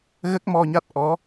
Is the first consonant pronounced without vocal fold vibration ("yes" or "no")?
no